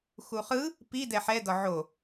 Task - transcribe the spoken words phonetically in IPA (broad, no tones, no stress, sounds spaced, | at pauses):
x u χ ɯ | p i d ɛ ħ ɛ d ɒ ʕ o